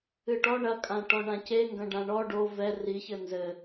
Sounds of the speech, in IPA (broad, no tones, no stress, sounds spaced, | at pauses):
ɨ ʈ ɔ ɳ ɐ kʼ ã ʈ ɔ ɳ ã c e ŋ ɡ ɐ̃ ɖ ã ɳ ɔ ɖ o v ɛ r i ç ɘ n z ɘ